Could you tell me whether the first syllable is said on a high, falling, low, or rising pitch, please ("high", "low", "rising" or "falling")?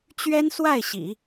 high